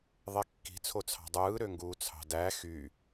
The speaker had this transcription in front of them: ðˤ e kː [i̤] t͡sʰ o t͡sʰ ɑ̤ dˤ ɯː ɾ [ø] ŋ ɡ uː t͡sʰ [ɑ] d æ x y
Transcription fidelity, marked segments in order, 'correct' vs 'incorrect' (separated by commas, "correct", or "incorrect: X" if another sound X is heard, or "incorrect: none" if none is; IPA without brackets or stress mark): correct, correct, incorrect: ɑ̤